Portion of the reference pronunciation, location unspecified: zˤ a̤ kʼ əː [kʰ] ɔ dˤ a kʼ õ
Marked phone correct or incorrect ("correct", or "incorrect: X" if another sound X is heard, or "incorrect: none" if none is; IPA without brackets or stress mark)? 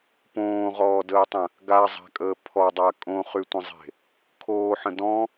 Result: incorrect: pʰ